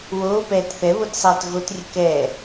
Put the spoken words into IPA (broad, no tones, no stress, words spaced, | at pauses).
woːpɛːt θɛβotsˤɛːt ɣotrʲə kɛː